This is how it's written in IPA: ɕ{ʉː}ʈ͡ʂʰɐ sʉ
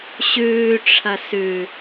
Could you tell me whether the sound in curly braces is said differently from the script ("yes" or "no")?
no